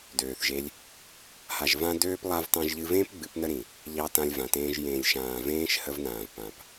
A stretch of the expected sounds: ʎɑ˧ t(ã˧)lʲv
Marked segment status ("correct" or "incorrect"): correct